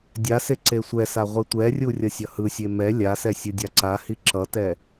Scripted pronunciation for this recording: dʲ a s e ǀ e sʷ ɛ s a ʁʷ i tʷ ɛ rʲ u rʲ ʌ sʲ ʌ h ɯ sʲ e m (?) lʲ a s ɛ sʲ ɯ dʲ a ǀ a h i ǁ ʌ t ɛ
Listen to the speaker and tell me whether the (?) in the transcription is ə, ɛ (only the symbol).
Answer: ɛ